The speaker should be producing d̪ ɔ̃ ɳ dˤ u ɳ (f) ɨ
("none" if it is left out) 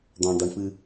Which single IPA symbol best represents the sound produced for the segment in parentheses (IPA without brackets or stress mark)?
f